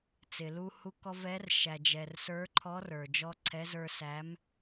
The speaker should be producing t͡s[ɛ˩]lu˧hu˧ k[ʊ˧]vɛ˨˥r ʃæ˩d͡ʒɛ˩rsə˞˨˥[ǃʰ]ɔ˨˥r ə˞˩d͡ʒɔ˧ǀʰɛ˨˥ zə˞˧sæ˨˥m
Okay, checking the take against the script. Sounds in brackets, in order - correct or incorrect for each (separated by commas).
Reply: incorrect, incorrect, correct